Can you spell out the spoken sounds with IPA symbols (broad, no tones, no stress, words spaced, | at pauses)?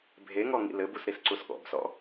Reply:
bʱeŋɔ ŋḭlɘbus ɾisǀusɠɔ̰bsɔ̰